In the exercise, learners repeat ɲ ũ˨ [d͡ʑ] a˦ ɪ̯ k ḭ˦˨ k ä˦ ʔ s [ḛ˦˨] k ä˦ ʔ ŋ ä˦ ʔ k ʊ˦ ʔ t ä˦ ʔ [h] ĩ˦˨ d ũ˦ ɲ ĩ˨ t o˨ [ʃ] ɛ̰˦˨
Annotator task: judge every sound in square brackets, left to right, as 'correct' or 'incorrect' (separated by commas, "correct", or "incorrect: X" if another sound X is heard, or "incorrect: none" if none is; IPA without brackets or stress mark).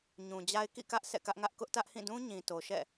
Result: correct, incorrect: ɛ̰˦˨, correct, correct